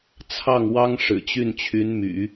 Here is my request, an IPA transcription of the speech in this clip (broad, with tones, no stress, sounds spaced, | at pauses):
t͡sʰ ɑ˥˩ ŋ w ɑ˥ ŋ ʂ ɻ̩˨˩ t͡ɕ y˥˩ n t͡ɕʰ y˧˥ n m y̰˨˩˦